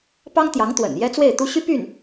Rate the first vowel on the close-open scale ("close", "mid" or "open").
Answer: open